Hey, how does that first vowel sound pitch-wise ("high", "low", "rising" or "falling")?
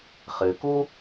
low